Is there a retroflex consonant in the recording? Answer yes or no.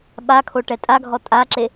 yes